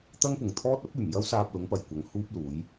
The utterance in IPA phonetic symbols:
t̪ ɐ˥ ŋ p ʊ˨ ŋ t̪ʰ ɔː˥ t̚ ɐ˥ p̚ yː˨˩ m j ɐ˥ w s aː˧ p̚ l ʊ˨˥ ŋ p ɐ˨˩ j kʷ ɐ˨˧ ŋ h uː˥ p̚ l uː˨˥ j

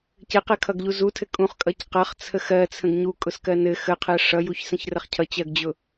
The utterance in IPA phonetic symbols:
c ɘ q ɜ kʰ ʌ ɡ ʎ u z u tʰ ɘ kʼ ũ χ kʼ ʌ c q ʌ χ t͡sʰ ə x ɜ t͡sʰ ə̃ ɡ ɲ u kʼ ʊ s k ɜ n ɘ x ə qʰ ɜ ʂ ʌ j u ç s ə̃ ç r ə χ cʰ ʌ t͡ɕ ɜ ɡ d͡ʑ ʊ

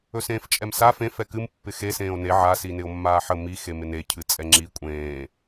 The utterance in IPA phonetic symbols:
ɵ s ẽː f t͡ʃʼ ɛ m s a f ẽ f ɛ k ɨ m pː ɪ x e s ẽː o̯ n e ʕ a s i n ɪ o̯ mː aː ħ ə m i x e m ɪ n e cʰ ɨ t͡sʼ ɛ ŋ͡ǁ i kʷʼ ẽː

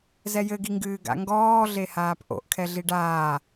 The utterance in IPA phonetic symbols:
z ɛ j ɘ ɡ i ŋ ɡ ɨː ɡ a̰ ŋ ɡ ɔː ɮ e h aː p ʔ o̰ ʔ kʰ ɛ ɮ i ɖ aː

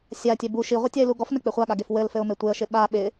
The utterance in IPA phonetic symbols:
sʲ a tʲ ɛ b u ʃ i ʁʷ ɘ tʲ a ɪ̯ l u ɡ ɔ f n ɘ k͡p ɪ χʷ a ɠ a ɡ e f w ɘ l f ɘ ʊ̯ m e tʷ e ə̯ ʃ ɪ ɓ a ɓ ɪ

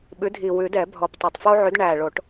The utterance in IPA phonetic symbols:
ɓ ʉ˨˥ dʱ i˨˩ w ʉ˨˩˦ d ɛ˨˩˦ bʱ ɔ˨˩ p tˤ o˨˩ tˤ f o˦ ʕ ʉ˨˥ d ɳ æ˨˩ ɭ o˨˩˦ ʈ

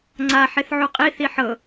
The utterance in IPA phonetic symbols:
ŋ͡ǀ a ħ e θ ʕ u qʼ i θ i ħ ɤ

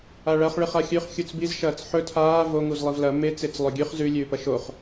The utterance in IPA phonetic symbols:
a ɭ ɐ χ ɭ ɨ χ a xʲ ʉ χ xʲ u t͡s b i z ʃ ɐː t͡s ħ ɵ tʰ aː v o ŋ u z lˠ i v l ɐ m e t͡s e t͡s lˠ ɵ ɡʲ ʉ χ z ʉ lʲ ʉː p ɐ ʃ o χ

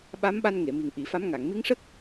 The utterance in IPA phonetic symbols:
ɓ a˧˥ m ɓ a˧ n ŋ e˨˩˨ m i˨˩ ŋ ʔ i˨˩˨ f a˧˥ m ŋ a˨˩˨ ŋ m i˧˥ ŋ ʂ ə˦˥ k̚

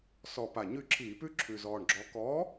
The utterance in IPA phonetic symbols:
s ɔ˨˩ p a˨˩ ɲ ʉ˦˨ ǁʰ iː˧˩˧ p ʉ˦˥ ǁʰ ʉ˨˩ z ɔː˨˩ ɳ ɡ͡ǁ ɔ˨˥ k ɔː˨˥

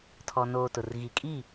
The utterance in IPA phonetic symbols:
tʰ ɔ˨ n oː˨ t ʊ˨ r ɣ i˨ kʼ i˦˨

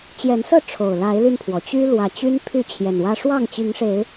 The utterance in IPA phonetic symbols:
t͡ɕ j ɛ˨˦ n s ɤ˥˨ ʈ͡ʂʰ o˨˩ ʊ̯ l a˨˦ ɪ̯ l y˧ n pʰ w ɔ˩ t͡ɕ y˦ l w ä˨˩ t͡ɕ y˦ n pʰ y˥˨ t͡ɕʰ j ɛ˨˩ n w ä˦ ʂ w ɑ˥˨ ŋ t͡ɕ i˨˦ ŋ ʂ e˨˦ ɪ̯

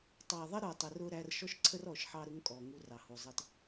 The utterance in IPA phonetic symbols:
tˤ ɑ˨ ðˤ ə˦ ɾ ə˞˨ tˤ ə˨ r ʊ˨ ɾ æ˨ r ʃ ɔ˦ ʃ ǀʰ ə˦ r ɔ˦˨ ʃ ħ ɑ˦ ɾ ʊ˦ ŋ kʼ ɔ˨ ŋ u˦ r ɑ˨ h u˨ zˤ ə˦ t

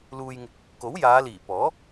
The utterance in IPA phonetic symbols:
l uː˧ j ŋ ɪ˧ k̚ | k o˨˥ w j aː˨˧ l iː˨˩ p ɔː˨˥

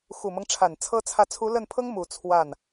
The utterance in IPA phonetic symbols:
x u˨˩ m ɤ˦ ŋ ʈ͡ʂʰ a˨˩ n t͡sʰ ɤ˥ t͡sʰ ä˥˩ t͡sʰ u˧˥ l ə˥˩ n pʰ ɤ˥ ŋ m u˨˩ t͡sʰ w a˥˩ n

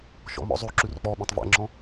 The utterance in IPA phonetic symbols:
ʃ ɔ̰ m ɔ̰ zˤ ʉ ǁ ʉ r k͡p ɔ ɓ œ̃ tˤ v æ̰ ŋ͡ǁ ɔ̃

